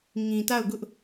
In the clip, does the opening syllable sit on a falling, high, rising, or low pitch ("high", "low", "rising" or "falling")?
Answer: low